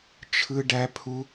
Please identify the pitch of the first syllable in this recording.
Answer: high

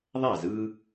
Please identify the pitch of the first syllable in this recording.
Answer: falling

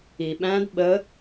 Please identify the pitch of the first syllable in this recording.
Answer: low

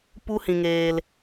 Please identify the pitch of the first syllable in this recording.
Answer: high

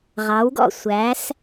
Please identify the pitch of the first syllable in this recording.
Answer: rising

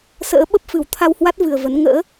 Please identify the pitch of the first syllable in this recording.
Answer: rising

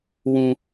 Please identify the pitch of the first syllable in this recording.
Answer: high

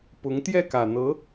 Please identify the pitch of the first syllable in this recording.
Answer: rising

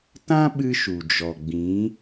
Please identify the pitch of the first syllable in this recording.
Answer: high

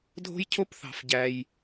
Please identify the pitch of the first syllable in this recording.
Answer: high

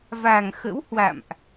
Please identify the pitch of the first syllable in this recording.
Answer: low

